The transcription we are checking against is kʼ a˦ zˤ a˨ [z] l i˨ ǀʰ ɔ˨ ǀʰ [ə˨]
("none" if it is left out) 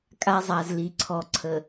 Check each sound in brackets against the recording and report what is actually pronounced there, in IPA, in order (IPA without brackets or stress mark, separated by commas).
z, ə˨